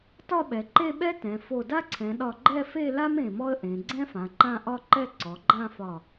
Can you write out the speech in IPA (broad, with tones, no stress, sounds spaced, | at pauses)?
t ɒ˥˧ ɓ ɛ˩˧ ǃ e˥˧ ɓ ɛ˥ t ɛ̃˩˧ f o˧˩ d a˥ ǀʰ ɛ̃˩˧ ɗ ɒ˥˧ ɡ͡ǃ ɛ˥˧ f e˥˧ l a˥ m ẽ˧˩ m ɔ˥ ə̯ ʔ ẽ˩˧ ɡ͡ǀ ɛ̃˥ f ã˩˧ ǃ ã˥˧ ʔ ɒ˥˧ ǃ ɛ˥˧ ǀ ɔ˩˧ ɡ͡ǃ ã˥˧ f ɒ˧˩